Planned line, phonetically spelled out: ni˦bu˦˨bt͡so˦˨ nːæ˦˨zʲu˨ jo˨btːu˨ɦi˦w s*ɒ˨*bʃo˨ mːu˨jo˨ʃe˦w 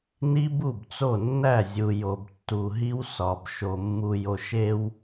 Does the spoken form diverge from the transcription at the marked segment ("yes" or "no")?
no